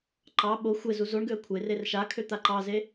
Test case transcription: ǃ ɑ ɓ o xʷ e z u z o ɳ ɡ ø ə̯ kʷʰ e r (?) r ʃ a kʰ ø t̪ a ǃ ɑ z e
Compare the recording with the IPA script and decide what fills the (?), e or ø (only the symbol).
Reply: e